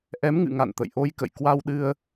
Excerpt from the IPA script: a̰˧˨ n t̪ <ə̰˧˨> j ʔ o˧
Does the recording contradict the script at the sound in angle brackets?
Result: no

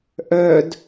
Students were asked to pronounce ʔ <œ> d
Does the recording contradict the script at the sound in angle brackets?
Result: no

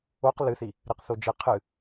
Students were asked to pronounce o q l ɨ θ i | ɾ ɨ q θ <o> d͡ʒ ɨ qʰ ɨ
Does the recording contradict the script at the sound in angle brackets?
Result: no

